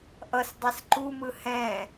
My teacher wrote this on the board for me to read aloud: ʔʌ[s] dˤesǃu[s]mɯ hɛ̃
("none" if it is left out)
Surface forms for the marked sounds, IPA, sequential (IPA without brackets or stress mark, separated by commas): s, none